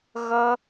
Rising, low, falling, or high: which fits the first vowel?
high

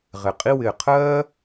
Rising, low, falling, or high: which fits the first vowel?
low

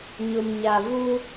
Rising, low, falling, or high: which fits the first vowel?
low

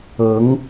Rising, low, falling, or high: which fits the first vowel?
rising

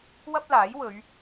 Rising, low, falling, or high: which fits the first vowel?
high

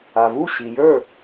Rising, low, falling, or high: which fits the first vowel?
low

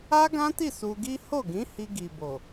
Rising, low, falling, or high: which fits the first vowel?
high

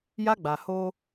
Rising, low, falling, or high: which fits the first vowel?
high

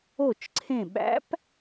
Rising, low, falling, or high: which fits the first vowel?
falling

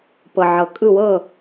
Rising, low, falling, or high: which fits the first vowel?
low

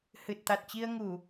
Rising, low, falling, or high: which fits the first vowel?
low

